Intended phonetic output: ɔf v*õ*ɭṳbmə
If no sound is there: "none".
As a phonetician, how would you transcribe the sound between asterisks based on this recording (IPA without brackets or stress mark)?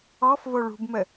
o